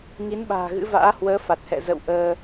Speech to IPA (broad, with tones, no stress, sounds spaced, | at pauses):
ŋ i˨˦ n ɓ a̤ː˨˩ ɣ ɨ̰˧˥ v a̰ː˧˥ h w əː˨˦ f a˨˩ t̚ h ɛ̰˧˨ z ə̰˧˨ w ʔ əː˧